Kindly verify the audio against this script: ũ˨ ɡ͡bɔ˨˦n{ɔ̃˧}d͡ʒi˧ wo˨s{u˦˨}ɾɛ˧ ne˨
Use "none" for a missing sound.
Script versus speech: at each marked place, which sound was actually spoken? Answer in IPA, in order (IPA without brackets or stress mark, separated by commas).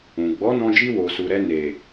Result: ɔ̃˧, u˨